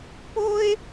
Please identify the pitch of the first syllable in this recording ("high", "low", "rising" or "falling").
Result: high